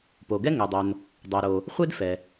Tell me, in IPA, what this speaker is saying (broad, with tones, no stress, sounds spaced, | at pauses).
p o˩ ɡ ɛ˥ ŋ ɛ˩ dˤ o˩ n | dˤ ɛ˩ ɾ o˩ | χʷ e˥ d f ɛ˩